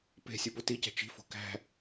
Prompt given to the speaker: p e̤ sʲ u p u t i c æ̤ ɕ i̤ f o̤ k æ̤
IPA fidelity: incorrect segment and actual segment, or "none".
ɕ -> t͡ʃ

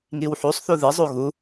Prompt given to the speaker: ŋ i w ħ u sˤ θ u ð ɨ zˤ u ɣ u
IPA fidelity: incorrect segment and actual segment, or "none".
none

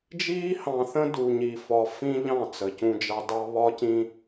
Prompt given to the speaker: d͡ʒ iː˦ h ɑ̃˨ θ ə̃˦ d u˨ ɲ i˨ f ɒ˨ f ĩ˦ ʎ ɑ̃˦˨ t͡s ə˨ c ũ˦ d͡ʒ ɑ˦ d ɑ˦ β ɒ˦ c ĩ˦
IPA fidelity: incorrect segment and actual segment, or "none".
none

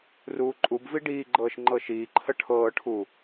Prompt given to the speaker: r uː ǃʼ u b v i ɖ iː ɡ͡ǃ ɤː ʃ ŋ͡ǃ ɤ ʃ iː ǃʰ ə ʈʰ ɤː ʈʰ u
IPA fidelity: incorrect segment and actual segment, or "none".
none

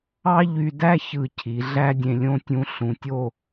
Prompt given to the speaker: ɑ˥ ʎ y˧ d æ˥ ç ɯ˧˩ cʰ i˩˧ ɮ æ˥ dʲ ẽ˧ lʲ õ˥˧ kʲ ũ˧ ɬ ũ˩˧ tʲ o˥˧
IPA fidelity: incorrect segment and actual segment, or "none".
kʲ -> tʲ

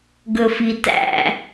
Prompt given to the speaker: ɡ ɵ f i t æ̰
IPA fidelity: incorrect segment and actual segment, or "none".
none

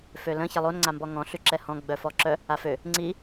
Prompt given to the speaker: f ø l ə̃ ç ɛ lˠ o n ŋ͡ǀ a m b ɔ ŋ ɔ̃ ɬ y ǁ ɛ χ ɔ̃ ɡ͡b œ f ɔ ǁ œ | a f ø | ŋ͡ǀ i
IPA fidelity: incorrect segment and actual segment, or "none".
χ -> h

